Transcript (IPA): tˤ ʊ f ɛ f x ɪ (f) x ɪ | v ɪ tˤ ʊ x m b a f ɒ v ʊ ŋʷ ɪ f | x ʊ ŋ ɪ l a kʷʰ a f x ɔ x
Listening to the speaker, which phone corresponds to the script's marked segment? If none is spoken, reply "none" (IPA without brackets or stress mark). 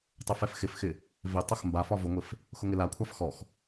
f